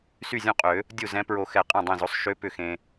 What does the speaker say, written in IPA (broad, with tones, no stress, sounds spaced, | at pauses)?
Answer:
s y˥˩ zʲ õ˥˩ qʼ ø˨˩˦ | dʲ u˥˩ z ɛ̃˧˥ p ɹ o˨˩˦ x ɛ˨˩˦ qʼ ɛ̃˥˩ dˤ ẽ˥˩ z o˧˥ sˤ ʃ ø˧˥ p ʏ˥˩ x ẽ˧